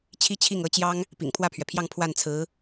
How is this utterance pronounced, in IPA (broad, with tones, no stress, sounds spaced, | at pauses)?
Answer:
t͡ɕʰ i˥ t͡ɕʰ i˥˩ ŋ ɤ˧˥ t͡ɕ j ɑ˥ ŋ | p ḭ˨˩ ŋ pʰ w ä˥˩ pʰ ɥ ɛ˩ pʰ j ɑ˥˧ ŋ pʰ w a˥˩ n t͡sʰ ɹ̩˧˥